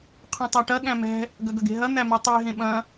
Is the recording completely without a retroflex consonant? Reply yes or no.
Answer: no